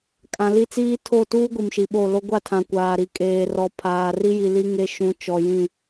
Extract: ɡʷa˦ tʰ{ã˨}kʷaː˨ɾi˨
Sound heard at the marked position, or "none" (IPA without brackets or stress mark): ã˨